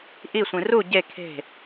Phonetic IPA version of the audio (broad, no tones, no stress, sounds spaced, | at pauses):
ʔ i sʷ ĩ r u ɟ e kʰ e̤